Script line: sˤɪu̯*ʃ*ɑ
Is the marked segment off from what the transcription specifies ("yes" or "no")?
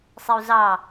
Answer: yes